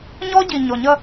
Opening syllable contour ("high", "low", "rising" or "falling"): high